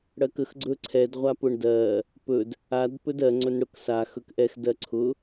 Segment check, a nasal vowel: absent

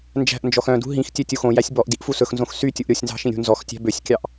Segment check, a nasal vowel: present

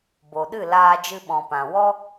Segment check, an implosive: present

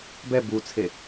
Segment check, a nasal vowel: absent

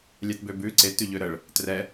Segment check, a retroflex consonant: present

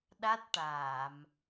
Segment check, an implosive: present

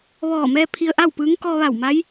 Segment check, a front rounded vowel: absent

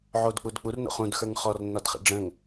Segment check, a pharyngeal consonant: present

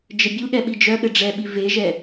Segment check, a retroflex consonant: present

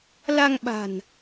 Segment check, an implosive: present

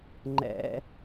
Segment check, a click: present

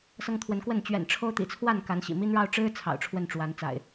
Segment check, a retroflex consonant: present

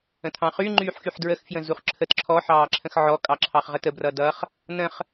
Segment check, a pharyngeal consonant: present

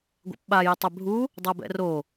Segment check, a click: absent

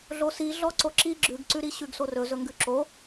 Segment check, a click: present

